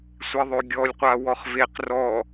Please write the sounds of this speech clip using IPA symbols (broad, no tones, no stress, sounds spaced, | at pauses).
sʷ i ðˤ ø ɡʲ ɔ lʲ qʷ a w ɔ χ v e q r ɔ